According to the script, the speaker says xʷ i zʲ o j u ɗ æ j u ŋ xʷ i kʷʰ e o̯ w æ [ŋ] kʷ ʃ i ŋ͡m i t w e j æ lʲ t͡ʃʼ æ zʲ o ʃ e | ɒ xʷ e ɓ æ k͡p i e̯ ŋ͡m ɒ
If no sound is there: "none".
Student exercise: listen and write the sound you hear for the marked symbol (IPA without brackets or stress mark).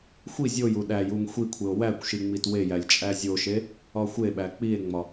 none